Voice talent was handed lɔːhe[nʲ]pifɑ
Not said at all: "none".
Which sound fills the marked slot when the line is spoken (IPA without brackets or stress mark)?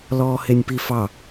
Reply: nʲ